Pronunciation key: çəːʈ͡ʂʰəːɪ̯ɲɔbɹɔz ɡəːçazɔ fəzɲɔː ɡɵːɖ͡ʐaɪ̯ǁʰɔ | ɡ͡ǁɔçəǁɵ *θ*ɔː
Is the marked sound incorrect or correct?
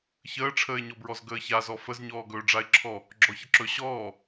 incorrect